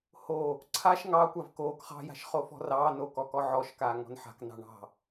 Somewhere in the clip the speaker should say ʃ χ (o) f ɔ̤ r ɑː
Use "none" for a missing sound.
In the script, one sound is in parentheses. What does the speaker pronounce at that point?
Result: o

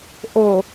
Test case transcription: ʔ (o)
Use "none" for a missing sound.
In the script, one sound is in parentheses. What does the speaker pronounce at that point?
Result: o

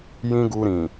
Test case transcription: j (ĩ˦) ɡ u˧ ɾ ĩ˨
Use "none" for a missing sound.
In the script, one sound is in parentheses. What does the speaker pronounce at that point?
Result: ĩ˦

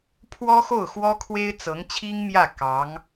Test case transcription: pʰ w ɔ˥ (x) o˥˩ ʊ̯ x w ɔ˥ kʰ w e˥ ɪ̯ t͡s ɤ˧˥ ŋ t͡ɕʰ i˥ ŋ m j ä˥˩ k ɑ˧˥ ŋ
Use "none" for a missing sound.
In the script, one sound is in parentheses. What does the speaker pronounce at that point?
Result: x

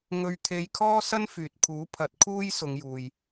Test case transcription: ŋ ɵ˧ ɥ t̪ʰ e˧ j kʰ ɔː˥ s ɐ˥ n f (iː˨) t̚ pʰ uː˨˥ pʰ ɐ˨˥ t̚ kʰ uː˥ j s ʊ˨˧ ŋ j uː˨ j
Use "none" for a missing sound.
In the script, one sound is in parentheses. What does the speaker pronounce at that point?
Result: yː˨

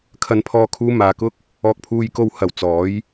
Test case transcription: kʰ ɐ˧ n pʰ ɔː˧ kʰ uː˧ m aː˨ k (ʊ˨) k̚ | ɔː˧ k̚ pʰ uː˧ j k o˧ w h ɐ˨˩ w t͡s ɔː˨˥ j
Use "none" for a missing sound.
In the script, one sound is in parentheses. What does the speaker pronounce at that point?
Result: ʊ˥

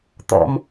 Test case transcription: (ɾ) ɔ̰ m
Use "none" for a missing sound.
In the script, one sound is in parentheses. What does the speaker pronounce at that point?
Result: t̪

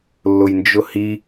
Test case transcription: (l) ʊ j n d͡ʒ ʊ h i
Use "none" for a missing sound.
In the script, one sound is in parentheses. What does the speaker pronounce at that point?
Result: lː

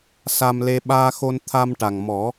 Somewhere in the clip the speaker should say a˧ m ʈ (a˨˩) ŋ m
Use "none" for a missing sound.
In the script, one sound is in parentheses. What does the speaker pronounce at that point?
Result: a˨˩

